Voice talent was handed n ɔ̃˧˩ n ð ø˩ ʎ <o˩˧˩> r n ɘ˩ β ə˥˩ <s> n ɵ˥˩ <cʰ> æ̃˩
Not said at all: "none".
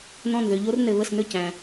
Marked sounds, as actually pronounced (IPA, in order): o˦, s, c

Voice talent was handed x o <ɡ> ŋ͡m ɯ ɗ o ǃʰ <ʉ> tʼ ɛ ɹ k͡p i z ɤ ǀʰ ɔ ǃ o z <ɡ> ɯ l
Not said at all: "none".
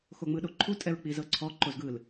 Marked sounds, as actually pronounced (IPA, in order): none, u, ɡ

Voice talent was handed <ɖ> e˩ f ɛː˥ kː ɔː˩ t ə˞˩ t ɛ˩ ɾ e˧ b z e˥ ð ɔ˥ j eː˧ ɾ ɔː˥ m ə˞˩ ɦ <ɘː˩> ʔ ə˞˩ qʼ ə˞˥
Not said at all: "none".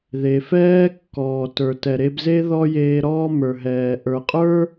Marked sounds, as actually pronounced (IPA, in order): ð, ɛː˩

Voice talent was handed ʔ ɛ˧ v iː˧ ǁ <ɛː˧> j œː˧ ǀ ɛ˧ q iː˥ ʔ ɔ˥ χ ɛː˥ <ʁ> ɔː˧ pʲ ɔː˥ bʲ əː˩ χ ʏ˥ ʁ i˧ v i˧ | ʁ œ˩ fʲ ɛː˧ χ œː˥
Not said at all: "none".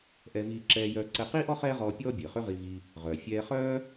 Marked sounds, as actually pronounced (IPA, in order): ɛː˧, ʁ

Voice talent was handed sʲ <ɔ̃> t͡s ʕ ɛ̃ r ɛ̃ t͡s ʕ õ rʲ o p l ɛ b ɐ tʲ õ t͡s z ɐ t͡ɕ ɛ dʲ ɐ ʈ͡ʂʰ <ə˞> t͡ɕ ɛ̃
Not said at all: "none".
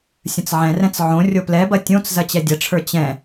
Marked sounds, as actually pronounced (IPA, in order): ə̃, ə˞

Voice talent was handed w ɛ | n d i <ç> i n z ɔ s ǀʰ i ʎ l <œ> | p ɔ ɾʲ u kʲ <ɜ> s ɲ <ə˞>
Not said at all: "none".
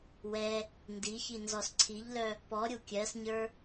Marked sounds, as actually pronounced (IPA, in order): ç, œ, ɜ, ə˞

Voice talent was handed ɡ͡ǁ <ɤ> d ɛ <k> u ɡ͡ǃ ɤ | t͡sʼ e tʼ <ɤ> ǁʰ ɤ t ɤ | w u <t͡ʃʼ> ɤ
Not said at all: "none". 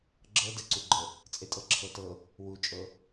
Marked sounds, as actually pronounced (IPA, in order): ɤ, ǀ, ɤ, t͡ʃʼ

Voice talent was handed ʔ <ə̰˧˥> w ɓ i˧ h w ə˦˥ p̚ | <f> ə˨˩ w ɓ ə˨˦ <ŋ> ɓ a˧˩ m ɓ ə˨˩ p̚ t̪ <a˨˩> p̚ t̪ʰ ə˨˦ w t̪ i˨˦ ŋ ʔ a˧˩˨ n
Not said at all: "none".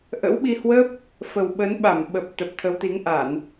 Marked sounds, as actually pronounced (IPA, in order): ə̰˧˥, f, n, ə˨˩

